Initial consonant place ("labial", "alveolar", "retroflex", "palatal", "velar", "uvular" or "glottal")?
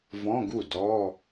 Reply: labial